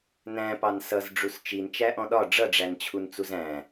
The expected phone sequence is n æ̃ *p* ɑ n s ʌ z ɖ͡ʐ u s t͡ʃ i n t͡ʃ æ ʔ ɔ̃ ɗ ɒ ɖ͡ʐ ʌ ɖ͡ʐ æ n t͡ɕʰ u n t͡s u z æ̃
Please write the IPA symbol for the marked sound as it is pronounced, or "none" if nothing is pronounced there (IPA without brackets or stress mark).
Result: p